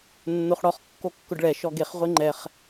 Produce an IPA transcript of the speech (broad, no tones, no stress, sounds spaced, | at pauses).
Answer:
nː o χ ɽ ɔ χ kː o kː ʊ ɖ ɭ ɛ ʃ ɔ ɡ e χ ʁʷ e ŋ͡ǃ ɛ χ